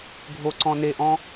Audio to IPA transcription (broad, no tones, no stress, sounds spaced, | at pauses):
ɡʱ o ǀ ɔ̃ n e ʔ ɔ̃